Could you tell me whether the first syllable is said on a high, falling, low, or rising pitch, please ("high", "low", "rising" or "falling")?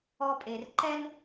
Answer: high